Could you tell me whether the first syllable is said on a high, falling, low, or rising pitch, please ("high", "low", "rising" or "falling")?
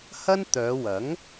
high